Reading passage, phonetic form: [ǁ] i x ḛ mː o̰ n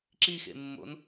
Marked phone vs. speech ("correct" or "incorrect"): correct